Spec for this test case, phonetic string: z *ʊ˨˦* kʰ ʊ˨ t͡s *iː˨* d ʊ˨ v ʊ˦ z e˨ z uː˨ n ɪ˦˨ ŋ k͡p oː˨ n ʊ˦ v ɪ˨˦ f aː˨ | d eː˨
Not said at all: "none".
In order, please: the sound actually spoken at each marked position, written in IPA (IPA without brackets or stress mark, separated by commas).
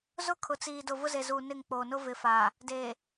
ʊ˦, iː˨